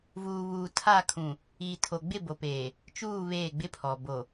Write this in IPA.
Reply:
v uː˨ β uː˨ tʰ a˦˨ kʰ ũ˨ | iː˨ tʰ o˨ ɡ͡b ɪ˦˨ b o˨ p eː˨ | t͡ʃ uː˦˨ β eː˦˨ ɡ͡b ɪ˦ pʰ ɔ˨ b o˨

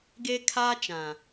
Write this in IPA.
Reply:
ɡ e˦ kʰ aː˦ t͡ʃ ã˨

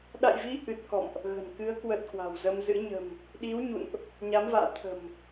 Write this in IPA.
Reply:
ɗ a̰˧˨ j v i˨˦ ʔ ɨ˨˩ t̚ k ɔ̰˧˨ m ʔ | ɣ ə̤˨˩ n k ɨ˨˦ ə̯ k w ə˨˩ t̚ k w a̤˨˩ w z ə˧ m z ɨ̰˧˥ ɲ ə̤˨˩ m | ɗ i˨˦ w ɲ ṵ˧˨ n ʔ | ɲ a˨˦ m v a̰ː˧˨ t̪ʰ ə̤˨˩ m

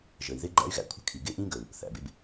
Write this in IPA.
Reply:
ʒ ə˨ i̯ ð ɪ˦ ɡ͡ǃ æ̰˦ y̯ ɣ æ̰˧ kʷʰ ə̤˦ kʰ i˨ ɡ ɪ˦˨ ʔ ĩ˦ ɡ ə˨ u̯ | θ æ̰˨ b ɪ˦ b

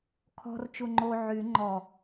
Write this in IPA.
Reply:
kʰ ɔ̤ r t͡ʃ u ŋ͡ǃ o ʕ y ŋ͡ǃ ɔ

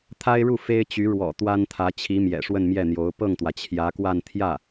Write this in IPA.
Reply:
t̪ʰ a˥ ɪ̯ ɻ u˥˩ f e˥ ɪ̯ t͡ɕ y˧˥ ɻ w ɔ̰˨˩ t̪ w a˥ n t̪ʰ ä˧˥ t͡ɕʰ i˧˥ m j ɛ̰˨˩ ʂ w ə˥˧ n m j ɛ˥˩ n̪ j o˧˥ ʊ̯ p ɤ˥˩ ŋ t̪ w ä˩ t͡ɕʰ j ä˧˥ k w a˥˧ n t̪ʰ j ä˥˩

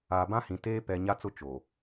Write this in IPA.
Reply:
aː˨ b ã˦ h ĩ˨ t eː˦ p ɛ˨ ɲ a˦ t͡s ʊ˦ t͡ʃ o˨

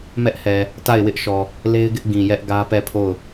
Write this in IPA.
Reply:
m ɛ˦ ʔ h ɛ˨ | t a˦˨ ɪ̯ w ɪ˦ ʔ ʃ ɔ˨ | l e˦ ɪ̯ ɡ ɪ˦ ʔ ɡ ĩ˨ j ɛ˦ ʔ ɡ ä˦ p ɛ˦˨ pʰ o˦˨ ʊ̯

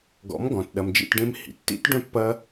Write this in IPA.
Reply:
ɡ ɔ̰˨˦ m ɡ ɔ̃˨ t ɗ ɐ˨ m d͡ʒ ḭ˦˨ t ɖ ẽ˧ m h ḭ˨ tː ḭ˦ t ɖ œ̃˦ pː ɐ˦

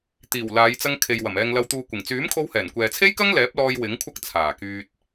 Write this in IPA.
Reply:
t̪ iː˨˩ w l aː˨˧ j t͡s ɐ˧ ŋ kʰ e˨ j w ɐ˨˩ m ɛː˧ ŋ l ɐ˧ w t̪ uː˨ kʷ ɪ˨˩ ŋ t͡s yː˨˥ m kʰ o˧ w h ɛː˨˩ n kʷ ɛː˨ t͡sʰ e˥ j k ɐ˥ ŋ l ɛː˨˥ p̚ l ɔː˧ j w ɪ˨˥ ŋ kʷʰ ɐ˥ k̚ t͡sʰ aː˨˩ k yː˧ t̚

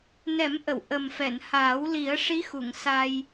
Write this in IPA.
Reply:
n ɛ˨˩˦ m ʔ ə˨˩˨ w ʔ ə˨˩ m f ɛ˨˩˨ n h aː˨˩˦ w l i˨˩˦ ə̯ ʂ i˧˥ x u˨˩˨ ŋ s a˧ j

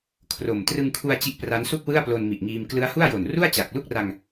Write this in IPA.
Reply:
kʰ r o˨˩ m t r ɯ˧ ŋ kʰ u˧ a̯ t͡ɕ i˦˥ ʔ p r a˦˥ n s u˥˩ k̚ w ɯ˥˩ a̯ p l o˧ n m i˨˩ ʔ ŋ iː˧ m k l ɯ˦˥ a̯ h u˥˩ a̯ j o˨˩ n r u˥˩ a̯ t͡ɕ a˨˩ k̚ l u˥˩ k̚ r a˧ ŋ

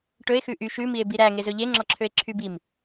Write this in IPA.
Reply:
ʈ ɵ e̯ x ʉ ʔ y ʃ ʉ m i e̯ b i ɾ æ ŋ e z ɵ ʎ e ŋ͡ǁ ɔ ǁʰ ø e̯ ǁʰ y b i m

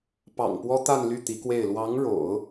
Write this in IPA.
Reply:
p ɑ̰˨˩ ŋ p w ɔ˥ t̪ a˥˧ n l y˥˩ t̪ i˧˥ k w e˥˩ ɪ̯ l w ɑ˧˥ ŋ ɻ o̰˨˩˦ ʊ̯

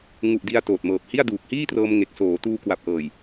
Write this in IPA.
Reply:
ŋ u˨˩ ʔ d i˧ a̯ t oː˨˩ t̚ m ɤː˨˩ p̚ h i˥˩ a̯ d uː˨˩ k̚ h iː˥˩ t r ɤː˧ m ŋ e˨˩ k̚ s oː˩˦ t uː˧ k w a˨˩ p̚ ʔ ɤː˨˩ j

